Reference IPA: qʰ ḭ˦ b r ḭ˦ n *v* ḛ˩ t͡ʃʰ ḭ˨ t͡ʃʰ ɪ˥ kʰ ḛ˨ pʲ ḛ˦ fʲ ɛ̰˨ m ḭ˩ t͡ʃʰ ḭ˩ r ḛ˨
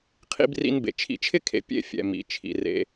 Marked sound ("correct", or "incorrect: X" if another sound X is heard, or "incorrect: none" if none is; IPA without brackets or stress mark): incorrect: b